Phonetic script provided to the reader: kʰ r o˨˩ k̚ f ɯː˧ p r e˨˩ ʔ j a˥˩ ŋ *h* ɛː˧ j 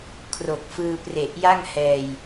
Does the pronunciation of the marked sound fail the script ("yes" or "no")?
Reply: no